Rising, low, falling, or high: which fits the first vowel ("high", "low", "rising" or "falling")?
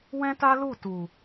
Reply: high